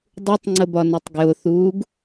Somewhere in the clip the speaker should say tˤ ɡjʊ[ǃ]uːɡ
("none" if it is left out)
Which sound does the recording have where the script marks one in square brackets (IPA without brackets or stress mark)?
θ